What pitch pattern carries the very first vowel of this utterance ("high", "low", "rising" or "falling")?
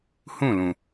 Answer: falling